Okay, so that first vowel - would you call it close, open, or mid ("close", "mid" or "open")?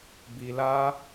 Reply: close